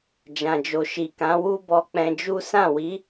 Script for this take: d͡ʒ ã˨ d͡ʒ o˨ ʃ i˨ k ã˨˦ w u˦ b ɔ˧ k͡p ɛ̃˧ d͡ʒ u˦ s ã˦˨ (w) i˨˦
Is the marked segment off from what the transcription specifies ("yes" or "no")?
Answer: no